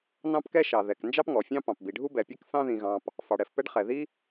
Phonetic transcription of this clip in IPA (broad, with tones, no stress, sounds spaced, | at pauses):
n ɑ̃˦ p k ɛ˦ ʃ ɑ˩ ð ɛ˩ k n d͡ʒ ɑ˦ p ŋ ɔ˩ fʲ ɑ̃˦ p ɑ̃˩ p b i˩ ɖʱ u˦ b ɛ˩ pʲ ɛ˦ k θ ɑ̃˦ ð ĩ˩ ɣ ɑ̃˩ p | f ɑ˩ ɽ ɛ˩ f p ɛ˦ ɖ χ ɛ˩ ð i˦